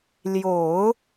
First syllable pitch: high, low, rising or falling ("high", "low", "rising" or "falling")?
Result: low